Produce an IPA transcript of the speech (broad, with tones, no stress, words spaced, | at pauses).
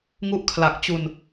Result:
ŋu˦˥ʔkʰla˨˩k̚t͡ɕu˧n